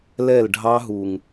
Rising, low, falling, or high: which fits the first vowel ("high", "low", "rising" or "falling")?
falling